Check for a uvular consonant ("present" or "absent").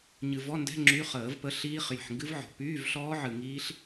present